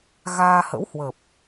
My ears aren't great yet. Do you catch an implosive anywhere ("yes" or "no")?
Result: no